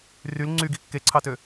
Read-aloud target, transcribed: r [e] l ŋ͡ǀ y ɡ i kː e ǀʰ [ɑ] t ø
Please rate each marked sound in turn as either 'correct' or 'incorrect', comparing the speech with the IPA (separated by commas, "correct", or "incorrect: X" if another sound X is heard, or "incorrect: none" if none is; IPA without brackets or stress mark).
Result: incorrect: y, correct